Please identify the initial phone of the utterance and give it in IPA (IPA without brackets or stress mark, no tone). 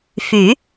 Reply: f